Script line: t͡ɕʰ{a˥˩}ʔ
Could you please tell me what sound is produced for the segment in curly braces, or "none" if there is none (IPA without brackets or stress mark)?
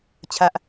a˥˩